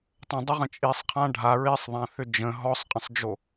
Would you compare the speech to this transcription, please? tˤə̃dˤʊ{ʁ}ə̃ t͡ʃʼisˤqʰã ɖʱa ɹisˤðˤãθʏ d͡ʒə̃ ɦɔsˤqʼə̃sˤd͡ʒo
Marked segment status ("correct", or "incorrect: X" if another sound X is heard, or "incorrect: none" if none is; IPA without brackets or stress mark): correct